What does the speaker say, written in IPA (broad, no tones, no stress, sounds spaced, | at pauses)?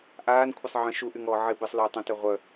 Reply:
ʔ aː n kʷʰ ɪ sˤ ʕ ə̃ ʃ u ʔ y ŋ ɔː ʕ ɪ b ɪ sˤ l œː tˤ ə̃ t œ ʁʷ œ